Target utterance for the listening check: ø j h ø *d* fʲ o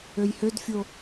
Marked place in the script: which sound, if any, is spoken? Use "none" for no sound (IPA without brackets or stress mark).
d